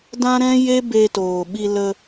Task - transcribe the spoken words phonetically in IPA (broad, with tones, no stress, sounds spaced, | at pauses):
d ã˦ ɾ ɛ̃˦ j e˦ b e˧ t oː˨ ɓ i˧ l ə˧